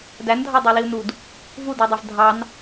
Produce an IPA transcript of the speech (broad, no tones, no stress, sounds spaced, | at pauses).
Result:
d æ n dʱ ɑ dˤ æ l i u̯ n u d | v u d e dˤ e v dʱ ɑ n